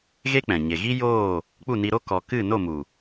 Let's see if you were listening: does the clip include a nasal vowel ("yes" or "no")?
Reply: yes